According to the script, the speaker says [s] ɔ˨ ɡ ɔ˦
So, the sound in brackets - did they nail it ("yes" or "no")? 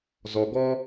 no